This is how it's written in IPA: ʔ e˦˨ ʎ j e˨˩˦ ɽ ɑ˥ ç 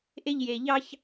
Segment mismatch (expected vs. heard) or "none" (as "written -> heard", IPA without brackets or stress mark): ɽ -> ʎ